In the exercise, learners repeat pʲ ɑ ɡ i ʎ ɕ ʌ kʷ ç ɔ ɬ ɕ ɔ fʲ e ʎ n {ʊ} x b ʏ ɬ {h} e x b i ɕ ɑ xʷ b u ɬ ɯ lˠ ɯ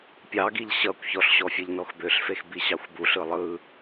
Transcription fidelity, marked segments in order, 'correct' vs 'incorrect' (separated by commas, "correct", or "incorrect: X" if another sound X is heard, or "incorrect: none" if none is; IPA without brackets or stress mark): incorrect: ɔ, incorrect: f